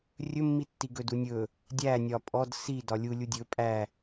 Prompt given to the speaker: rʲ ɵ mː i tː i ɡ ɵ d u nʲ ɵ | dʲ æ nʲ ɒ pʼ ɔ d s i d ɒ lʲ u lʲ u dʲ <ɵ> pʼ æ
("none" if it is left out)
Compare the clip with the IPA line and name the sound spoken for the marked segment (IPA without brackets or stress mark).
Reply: ɵ